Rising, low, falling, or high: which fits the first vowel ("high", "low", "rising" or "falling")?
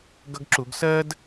high